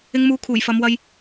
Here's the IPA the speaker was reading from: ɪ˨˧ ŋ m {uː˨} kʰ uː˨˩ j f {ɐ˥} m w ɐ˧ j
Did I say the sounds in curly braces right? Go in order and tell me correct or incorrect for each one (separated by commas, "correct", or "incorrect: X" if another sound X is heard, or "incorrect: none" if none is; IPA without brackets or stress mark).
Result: correct, incorrect: ɐ˨˧